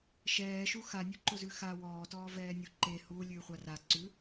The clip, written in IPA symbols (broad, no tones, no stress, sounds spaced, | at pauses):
ʃ ɛː ʃ u x a nʲ u ǃ ʊ z ʉ x a w ɔː t ɔː v ɛː nʲ u ǃ e h u lʲ ʉː χʷ a r a ǀ ʉ